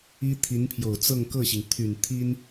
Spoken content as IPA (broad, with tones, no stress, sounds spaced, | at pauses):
i˥ t̪ʰ i˧˥ n pʰ j o˨˩ ʊ̯ t͡s ɤ˥˧ ŋ k ɤ˥˩ ɕ i˩ ŋ t̪ʰ y˨˩ n t̪ʰ i˥ n